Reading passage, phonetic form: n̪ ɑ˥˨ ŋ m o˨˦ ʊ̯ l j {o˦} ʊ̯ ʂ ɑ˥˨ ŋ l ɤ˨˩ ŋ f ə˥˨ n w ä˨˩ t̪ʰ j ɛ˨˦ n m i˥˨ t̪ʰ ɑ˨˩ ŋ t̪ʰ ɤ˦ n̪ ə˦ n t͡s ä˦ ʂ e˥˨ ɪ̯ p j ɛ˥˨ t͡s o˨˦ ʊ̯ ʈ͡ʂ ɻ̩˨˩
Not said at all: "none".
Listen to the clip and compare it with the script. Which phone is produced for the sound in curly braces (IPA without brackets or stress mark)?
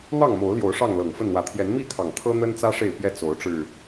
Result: o˨˦